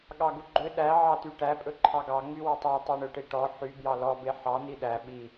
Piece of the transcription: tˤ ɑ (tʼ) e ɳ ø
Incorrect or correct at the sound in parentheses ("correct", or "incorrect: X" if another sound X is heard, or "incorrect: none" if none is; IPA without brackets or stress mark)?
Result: incorrect: tˤ